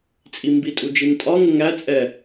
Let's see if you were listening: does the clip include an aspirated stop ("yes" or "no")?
no